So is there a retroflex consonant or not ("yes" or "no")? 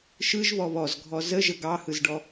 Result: yes